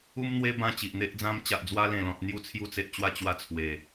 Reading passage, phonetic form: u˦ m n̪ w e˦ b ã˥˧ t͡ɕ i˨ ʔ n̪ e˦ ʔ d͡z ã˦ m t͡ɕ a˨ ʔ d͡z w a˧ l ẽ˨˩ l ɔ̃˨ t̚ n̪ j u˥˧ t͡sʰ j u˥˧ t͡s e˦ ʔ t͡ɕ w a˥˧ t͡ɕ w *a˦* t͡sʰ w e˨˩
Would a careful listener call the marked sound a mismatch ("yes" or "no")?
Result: yes